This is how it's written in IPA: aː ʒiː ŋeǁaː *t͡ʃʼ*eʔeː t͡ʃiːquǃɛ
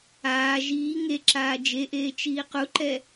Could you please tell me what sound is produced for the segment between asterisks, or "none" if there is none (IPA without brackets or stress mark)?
d͡ʒ